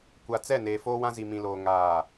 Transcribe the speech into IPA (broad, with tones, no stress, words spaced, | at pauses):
kʷa˨t͡sɛ˦˨ neː˨foː˦wã˦ zi˨mĩ˨loː˨ ŋaː˨